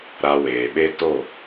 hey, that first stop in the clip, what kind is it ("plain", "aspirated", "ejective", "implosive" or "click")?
implosive